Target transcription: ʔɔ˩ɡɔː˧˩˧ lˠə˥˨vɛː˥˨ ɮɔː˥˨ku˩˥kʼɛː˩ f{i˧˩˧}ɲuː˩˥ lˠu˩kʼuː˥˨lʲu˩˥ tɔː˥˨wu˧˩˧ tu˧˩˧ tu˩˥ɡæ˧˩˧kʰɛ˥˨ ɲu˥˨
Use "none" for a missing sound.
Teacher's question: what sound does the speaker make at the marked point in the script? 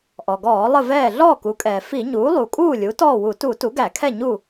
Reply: i˧˩˧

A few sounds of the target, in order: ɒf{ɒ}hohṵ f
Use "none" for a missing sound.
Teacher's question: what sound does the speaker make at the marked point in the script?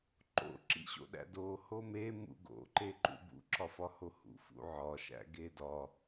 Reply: ɒ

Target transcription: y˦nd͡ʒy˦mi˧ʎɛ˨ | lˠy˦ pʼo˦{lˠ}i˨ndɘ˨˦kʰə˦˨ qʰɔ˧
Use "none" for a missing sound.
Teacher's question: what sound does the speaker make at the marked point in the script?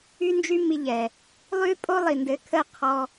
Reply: lˠ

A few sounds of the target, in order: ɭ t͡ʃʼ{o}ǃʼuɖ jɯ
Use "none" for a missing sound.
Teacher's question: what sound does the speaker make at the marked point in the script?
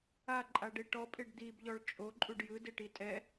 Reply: o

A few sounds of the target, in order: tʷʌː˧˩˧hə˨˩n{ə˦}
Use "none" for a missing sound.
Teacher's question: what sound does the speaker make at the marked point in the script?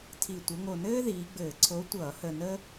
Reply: ə˦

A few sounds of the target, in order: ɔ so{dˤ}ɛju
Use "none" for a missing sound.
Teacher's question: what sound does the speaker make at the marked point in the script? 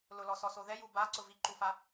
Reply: ð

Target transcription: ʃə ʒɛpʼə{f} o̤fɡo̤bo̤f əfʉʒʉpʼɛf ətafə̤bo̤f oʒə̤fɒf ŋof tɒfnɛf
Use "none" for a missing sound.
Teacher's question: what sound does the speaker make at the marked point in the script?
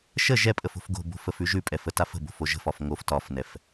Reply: f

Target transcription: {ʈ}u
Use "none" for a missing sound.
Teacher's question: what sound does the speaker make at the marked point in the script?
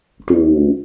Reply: ʈ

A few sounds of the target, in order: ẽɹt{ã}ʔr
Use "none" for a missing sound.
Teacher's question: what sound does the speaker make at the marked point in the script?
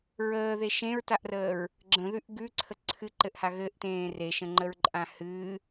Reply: a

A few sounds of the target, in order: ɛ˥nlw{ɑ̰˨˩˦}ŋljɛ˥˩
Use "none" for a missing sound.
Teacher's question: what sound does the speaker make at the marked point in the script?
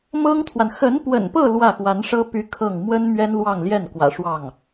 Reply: ɑ˥˧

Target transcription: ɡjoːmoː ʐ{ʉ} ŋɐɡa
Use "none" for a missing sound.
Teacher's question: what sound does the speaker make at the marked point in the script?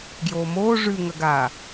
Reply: ʉ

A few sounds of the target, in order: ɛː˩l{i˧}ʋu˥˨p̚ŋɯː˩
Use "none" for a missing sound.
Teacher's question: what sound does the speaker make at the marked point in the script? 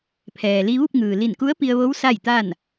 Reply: i˧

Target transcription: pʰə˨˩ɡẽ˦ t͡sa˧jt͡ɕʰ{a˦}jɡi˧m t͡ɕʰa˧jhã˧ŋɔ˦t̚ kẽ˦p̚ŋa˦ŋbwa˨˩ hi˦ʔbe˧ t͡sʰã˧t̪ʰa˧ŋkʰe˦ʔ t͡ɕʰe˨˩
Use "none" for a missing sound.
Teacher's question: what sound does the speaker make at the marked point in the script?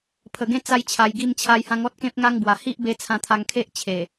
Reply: a˨˩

